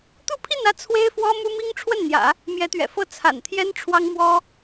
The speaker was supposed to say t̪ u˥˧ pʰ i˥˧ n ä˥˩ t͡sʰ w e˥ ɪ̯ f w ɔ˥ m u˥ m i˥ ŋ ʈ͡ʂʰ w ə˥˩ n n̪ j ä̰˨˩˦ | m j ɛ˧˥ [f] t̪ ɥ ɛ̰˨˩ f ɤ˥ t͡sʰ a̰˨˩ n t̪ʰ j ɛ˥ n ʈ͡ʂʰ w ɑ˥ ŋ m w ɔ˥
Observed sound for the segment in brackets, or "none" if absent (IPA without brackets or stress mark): none